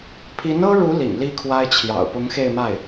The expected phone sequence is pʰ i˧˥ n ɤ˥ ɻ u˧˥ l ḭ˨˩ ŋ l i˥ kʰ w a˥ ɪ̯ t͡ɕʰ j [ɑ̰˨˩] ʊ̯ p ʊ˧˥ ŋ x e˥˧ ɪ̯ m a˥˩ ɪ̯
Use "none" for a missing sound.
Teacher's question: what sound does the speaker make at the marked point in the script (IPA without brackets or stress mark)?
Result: ɑ̰˨˩